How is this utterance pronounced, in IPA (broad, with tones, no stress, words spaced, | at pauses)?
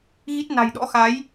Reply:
ɣi˦˥t̚ na̤˨˩jɗɔ̰˧˥xa˨˦j